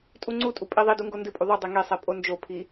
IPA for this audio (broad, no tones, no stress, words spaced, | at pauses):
tʼuŋ͡ǀutʼu pʼiðˤidu ŋɡondɨpʼu ðˤudˤe ŋesˤɛ pʼond͡ʒopʰi